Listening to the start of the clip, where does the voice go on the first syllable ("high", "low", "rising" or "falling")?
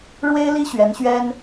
high